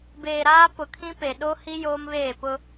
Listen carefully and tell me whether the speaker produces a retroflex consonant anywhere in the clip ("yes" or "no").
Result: no